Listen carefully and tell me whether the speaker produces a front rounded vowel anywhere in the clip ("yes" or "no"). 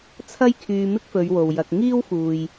yes